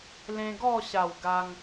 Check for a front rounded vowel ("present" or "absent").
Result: absent